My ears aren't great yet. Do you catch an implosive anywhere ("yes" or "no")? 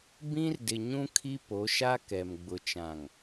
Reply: no